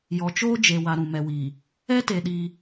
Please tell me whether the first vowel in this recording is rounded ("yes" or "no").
yes